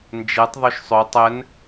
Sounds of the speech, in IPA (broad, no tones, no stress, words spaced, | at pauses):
nd͡ʒɛtˤ ðˤɵʃsˤɵ tˤɛn